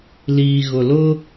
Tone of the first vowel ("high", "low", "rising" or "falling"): low